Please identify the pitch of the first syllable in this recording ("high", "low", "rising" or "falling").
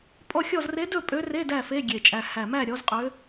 falling